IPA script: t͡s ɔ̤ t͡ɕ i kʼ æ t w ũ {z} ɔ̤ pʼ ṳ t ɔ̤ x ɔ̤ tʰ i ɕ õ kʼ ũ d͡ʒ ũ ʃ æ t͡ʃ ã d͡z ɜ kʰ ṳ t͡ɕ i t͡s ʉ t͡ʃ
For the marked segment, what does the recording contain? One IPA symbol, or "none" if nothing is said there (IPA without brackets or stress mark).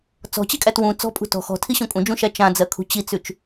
t͡s